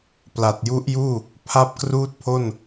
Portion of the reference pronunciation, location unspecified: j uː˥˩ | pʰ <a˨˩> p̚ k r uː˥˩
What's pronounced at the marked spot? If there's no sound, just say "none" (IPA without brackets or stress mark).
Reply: a˥˩